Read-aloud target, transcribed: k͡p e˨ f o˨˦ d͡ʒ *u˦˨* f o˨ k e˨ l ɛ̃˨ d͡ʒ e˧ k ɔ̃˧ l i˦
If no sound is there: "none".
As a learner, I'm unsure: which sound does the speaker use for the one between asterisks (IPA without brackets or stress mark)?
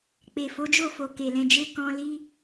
o˦˨